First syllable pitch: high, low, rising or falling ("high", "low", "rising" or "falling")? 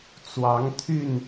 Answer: rising